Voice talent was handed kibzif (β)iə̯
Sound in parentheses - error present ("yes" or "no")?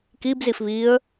no